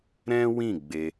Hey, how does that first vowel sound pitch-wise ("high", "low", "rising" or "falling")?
high